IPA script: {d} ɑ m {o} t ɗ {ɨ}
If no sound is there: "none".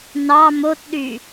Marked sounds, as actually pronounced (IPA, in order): n, o, y

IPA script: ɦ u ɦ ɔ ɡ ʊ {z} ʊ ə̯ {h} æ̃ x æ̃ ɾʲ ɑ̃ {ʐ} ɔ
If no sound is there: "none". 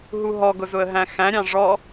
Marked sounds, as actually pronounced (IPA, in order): z, ɦ, ʐ

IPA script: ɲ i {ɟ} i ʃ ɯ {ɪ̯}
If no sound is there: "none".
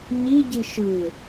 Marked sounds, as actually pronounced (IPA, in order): ɟ, ɪ̯

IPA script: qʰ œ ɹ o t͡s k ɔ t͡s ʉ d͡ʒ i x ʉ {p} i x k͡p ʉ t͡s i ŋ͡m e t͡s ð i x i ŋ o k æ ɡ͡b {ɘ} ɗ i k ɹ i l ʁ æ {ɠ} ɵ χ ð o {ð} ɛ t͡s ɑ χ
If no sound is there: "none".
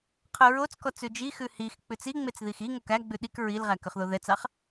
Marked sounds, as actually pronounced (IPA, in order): h, ʉ, k, ð

